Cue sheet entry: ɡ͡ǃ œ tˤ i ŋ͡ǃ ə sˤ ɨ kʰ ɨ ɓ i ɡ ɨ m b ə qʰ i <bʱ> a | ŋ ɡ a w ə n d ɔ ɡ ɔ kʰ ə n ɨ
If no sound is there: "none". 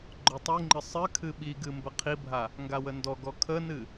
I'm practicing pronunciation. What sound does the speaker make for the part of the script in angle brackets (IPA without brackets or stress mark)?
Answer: bʱ